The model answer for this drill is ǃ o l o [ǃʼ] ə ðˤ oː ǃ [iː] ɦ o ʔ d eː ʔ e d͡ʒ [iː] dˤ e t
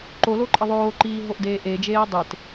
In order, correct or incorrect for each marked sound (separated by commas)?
correct, correct, incorrect